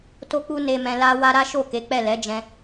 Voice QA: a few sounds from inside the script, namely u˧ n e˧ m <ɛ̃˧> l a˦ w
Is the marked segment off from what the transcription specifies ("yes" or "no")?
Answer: no